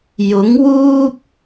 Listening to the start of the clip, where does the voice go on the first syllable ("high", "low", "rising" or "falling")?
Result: rising